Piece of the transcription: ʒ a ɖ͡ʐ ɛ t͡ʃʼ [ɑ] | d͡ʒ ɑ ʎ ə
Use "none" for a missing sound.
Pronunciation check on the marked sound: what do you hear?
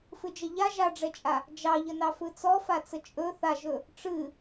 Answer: a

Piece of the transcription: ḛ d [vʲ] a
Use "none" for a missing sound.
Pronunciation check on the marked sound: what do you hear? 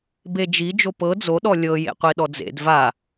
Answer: v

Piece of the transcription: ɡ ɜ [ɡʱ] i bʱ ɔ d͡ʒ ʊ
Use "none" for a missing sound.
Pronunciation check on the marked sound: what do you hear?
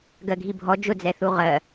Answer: ɡʱ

